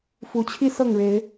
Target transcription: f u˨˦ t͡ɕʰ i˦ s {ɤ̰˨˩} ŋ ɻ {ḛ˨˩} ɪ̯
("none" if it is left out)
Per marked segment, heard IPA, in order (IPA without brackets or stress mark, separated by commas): ɤ˥˨, e˨˦